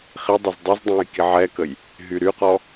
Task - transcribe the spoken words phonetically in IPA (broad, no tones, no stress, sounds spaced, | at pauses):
χ i dˤ œ z dˤ y z dˤ õ j k i ʕ ɛ k ə j | ɦ y ɾ y q ɔ